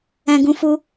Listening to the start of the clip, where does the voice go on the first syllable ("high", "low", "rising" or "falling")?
high